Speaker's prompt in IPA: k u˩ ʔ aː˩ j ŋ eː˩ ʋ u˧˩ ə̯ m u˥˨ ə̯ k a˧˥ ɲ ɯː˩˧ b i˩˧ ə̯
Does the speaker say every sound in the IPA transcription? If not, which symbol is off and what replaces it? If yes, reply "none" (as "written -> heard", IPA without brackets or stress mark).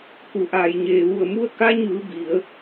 ŋ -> ɲ